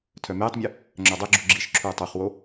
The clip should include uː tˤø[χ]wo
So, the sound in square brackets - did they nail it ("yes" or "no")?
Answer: yes